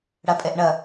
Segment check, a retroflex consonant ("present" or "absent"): present